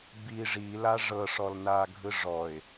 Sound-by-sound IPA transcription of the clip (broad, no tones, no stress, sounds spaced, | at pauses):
b i ʐ i l a ʐ ɤ ʂ ɔ l n a ɡʱ ɯ ʐ ɔ ɪ̯